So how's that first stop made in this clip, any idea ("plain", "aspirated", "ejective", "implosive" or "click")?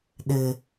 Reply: implosive